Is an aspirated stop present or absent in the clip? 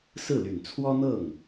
present